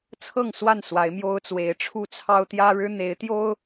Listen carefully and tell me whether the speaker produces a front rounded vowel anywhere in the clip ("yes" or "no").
no